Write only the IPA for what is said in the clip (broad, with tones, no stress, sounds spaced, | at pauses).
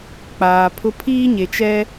k͡p aː˨ pʰ ʊ˦ pʰ iː˦ ɲ e˨ t͡ʃ ɛ˦